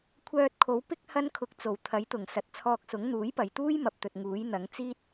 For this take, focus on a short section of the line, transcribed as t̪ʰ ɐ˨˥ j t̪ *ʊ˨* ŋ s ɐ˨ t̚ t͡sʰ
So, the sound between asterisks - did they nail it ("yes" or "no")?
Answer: no